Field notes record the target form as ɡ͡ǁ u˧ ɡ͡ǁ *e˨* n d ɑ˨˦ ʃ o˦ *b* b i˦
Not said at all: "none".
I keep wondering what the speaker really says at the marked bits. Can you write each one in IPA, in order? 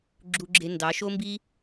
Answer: e˧, m

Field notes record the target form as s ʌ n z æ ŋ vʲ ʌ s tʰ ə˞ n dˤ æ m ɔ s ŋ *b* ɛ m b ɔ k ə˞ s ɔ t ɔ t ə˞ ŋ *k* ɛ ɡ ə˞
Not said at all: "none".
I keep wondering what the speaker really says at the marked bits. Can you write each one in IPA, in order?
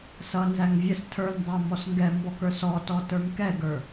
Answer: ɡ, k

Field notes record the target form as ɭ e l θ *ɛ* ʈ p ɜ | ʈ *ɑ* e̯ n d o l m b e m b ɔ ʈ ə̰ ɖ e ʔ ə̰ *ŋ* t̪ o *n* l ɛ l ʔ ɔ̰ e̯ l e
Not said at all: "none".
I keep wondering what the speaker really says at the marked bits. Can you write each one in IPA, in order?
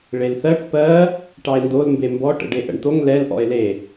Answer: ɜ, ɑ, ɳ, ŋ

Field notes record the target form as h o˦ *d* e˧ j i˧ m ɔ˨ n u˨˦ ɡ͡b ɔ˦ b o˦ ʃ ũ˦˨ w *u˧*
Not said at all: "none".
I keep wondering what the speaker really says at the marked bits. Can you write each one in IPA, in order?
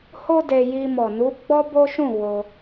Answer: d, o˧

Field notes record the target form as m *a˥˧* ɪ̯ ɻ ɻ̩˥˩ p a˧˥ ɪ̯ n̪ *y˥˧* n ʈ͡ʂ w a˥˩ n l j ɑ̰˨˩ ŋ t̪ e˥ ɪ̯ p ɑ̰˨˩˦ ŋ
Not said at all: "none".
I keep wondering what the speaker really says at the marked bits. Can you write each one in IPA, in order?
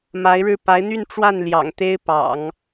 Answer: a˧˥, y˥˧

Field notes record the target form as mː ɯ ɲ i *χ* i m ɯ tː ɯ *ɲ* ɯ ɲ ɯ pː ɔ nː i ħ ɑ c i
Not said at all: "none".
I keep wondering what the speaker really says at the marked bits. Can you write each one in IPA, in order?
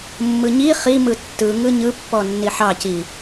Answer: χ, ŋ

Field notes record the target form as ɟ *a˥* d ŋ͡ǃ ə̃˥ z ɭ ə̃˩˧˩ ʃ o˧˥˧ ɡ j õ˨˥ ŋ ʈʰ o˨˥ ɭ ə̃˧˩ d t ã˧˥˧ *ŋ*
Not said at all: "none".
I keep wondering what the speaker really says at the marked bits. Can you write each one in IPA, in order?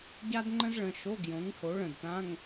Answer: a˥, ŋ

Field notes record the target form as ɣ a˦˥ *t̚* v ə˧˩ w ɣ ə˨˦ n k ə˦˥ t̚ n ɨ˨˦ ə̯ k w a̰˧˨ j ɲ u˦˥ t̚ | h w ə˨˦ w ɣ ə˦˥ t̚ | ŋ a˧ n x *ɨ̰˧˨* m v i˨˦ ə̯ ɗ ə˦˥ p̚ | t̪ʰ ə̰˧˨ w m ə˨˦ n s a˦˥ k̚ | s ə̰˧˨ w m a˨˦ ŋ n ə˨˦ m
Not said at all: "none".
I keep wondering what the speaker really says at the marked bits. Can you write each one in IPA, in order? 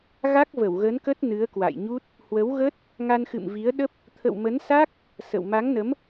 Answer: k̚, ɨ̰˧˨

